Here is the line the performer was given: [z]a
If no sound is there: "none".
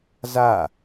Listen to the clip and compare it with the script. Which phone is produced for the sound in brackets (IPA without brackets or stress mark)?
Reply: z